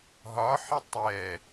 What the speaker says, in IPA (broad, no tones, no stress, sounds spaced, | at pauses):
ɦ ɒ ħ ɪ tˤ ɛ